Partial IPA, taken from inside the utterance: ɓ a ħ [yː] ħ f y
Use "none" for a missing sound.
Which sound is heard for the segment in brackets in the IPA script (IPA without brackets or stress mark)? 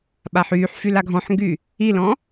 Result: yː